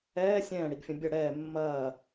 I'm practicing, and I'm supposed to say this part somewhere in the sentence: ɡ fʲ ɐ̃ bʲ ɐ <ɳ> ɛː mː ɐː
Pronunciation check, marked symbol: incorrect: ɽ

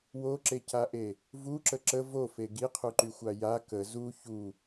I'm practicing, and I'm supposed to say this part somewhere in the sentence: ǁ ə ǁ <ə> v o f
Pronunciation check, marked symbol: correct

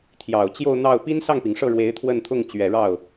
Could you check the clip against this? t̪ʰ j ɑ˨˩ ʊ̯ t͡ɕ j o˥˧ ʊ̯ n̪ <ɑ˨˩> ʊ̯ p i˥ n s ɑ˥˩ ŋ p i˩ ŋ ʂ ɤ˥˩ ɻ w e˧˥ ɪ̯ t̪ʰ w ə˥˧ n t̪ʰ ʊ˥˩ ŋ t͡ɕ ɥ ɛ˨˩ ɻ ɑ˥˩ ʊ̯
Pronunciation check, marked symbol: incorrect: ɑ˥˩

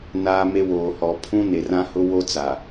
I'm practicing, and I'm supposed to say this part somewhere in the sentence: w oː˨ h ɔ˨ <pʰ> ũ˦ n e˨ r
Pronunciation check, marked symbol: correct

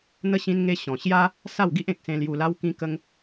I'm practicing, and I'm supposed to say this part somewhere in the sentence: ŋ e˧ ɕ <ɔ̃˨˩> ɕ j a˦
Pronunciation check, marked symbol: correct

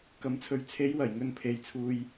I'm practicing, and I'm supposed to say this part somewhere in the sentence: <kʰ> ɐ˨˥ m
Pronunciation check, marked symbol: incorrect: k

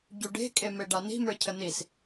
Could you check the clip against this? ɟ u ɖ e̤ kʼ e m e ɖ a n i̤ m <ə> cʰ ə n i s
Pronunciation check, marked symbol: incorrect: ə˞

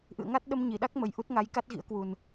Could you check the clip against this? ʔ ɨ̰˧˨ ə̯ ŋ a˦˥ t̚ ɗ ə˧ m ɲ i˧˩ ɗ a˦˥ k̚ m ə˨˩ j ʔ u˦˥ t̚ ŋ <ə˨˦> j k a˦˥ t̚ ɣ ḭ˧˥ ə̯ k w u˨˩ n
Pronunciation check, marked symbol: incorrect: a˨˦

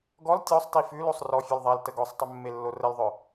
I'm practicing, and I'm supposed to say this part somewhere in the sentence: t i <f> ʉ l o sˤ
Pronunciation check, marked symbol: correct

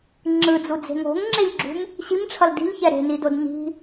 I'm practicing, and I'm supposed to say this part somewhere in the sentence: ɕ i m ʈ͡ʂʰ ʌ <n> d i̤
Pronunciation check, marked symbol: incorrect: l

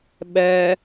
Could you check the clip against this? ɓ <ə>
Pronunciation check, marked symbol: incorrect: ɛ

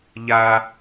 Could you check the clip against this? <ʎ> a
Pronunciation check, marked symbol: correct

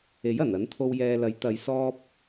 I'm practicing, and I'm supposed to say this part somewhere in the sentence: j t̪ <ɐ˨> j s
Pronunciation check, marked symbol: correct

